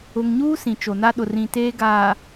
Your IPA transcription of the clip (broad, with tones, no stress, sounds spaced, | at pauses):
ʊ˨ ŋ ɲ uː˦ s ĩ˨ t͡ʃ o˨ n a˦ ɗ ʊ˨ r ĩ˨ t eː˦ ɡ aː˨